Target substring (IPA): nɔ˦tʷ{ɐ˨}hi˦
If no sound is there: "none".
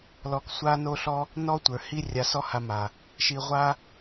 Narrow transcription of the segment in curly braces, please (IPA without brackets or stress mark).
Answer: ə˞˨